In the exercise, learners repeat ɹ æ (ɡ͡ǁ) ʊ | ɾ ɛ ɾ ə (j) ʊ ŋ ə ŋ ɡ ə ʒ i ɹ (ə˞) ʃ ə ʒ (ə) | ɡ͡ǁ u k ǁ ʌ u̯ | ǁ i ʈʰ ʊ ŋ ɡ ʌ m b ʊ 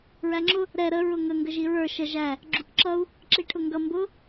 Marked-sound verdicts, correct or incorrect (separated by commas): incorrect, incorrect, correct, incorrect